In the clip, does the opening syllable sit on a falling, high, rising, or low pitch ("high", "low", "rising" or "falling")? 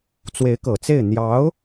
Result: rising